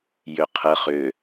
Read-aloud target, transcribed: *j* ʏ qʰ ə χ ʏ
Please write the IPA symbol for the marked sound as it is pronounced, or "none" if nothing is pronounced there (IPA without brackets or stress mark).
j